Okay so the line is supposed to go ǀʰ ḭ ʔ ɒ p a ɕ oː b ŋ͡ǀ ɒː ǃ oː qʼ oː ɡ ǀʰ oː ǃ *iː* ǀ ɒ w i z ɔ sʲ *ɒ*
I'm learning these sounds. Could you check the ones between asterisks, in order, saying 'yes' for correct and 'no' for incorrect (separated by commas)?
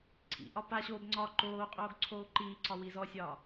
yes, no